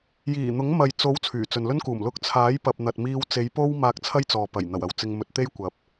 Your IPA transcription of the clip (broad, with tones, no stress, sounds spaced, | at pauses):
j iː˨˩ n̪ ʊ˨˥ ŋ m ɐ˨ j t͡s o˨˥ w t͡sʰ yː˨˩ t͡s ɵ˨ n l ɵ˥ n k uː˨˩ m l ʊ˧ k̚ t͡sʰ aː˨˥ j p ɐ˨ p̚ n̪ ɐ˨ t̚ m iː˧ w t͡s e˨˥ j p o˥ w m aː˧ k̚ t͡sʰ ɐ˥ j t͡s ɔː˨ p ɐ˨˩ j n̪ ɐ˨˩ w ɐ˨˥ w t͡s ɪ˧ ŋ m ɵ˧ t̚ t̪ e˥ j kʷ ɐ˧ p̚